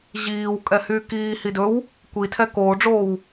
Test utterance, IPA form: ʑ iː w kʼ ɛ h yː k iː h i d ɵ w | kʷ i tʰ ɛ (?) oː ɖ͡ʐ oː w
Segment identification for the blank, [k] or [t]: k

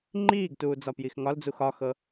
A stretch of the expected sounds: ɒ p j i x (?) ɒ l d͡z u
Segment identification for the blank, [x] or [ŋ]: ŋ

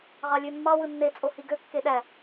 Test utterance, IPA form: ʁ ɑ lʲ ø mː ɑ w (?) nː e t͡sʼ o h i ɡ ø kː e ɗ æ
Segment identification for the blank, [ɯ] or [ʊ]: ɯ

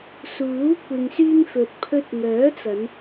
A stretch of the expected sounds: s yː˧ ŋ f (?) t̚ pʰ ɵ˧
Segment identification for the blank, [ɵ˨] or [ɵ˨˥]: ɵ˨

